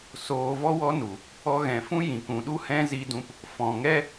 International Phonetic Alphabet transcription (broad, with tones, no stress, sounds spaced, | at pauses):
s oː˧ v ɔ˦ w ɔ˦ n u˨ | ɔ˧ ɣ ɛ̃˨ f ũ˦ j ĩ˨ k ũ˨ ɗ u˦ h ɛ̃˦ z i˧ d ũ˧ p | f ɔ̃˨ ŋ ɛ˦